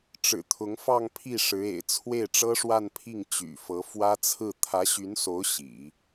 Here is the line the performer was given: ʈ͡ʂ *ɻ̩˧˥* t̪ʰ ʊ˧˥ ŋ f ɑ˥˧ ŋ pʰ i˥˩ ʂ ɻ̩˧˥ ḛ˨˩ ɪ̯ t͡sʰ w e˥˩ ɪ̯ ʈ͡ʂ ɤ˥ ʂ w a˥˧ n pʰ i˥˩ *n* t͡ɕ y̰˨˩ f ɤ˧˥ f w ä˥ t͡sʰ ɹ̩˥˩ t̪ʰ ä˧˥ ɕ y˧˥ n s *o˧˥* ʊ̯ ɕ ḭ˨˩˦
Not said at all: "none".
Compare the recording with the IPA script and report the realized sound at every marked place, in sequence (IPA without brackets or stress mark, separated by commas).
ɻ̩˨˩, ŋ, o˧˥